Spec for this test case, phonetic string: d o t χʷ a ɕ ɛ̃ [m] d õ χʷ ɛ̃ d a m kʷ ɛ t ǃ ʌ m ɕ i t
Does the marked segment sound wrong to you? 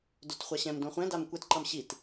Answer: no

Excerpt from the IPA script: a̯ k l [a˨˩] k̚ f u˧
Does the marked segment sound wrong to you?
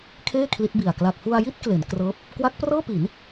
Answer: no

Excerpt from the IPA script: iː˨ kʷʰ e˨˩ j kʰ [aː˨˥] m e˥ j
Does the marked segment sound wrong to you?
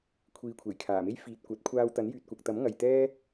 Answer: yes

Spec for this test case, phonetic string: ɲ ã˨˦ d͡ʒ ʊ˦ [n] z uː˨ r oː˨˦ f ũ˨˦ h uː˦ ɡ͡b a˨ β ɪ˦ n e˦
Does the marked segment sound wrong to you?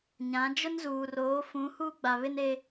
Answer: no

